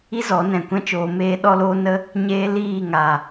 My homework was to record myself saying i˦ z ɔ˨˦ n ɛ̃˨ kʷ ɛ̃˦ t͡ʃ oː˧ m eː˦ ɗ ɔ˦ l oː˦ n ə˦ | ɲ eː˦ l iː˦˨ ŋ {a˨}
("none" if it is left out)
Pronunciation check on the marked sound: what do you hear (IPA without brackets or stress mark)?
a˨